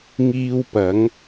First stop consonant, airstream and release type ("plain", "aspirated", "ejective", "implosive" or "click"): plain